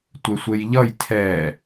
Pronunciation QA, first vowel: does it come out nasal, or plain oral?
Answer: oral